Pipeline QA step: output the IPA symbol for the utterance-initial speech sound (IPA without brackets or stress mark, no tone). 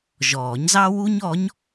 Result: ʒ